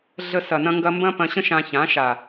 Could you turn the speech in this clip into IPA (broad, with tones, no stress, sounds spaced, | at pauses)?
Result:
ɮ ə˧ s ɐ˨ n ɐ̃˧ ŋ ɡ ɐ˧ m b ɐ̃˦ p ɐ̃˧ ɕ ə̃˦ ʃ ã˧ ç ã˨˦ ʃ a˨